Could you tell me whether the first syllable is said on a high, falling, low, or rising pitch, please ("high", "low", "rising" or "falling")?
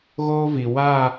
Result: high